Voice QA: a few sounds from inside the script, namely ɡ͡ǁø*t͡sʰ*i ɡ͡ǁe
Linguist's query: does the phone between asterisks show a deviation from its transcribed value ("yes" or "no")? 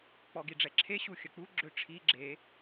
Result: yes